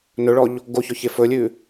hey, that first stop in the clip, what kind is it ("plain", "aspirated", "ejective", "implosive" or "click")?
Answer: plain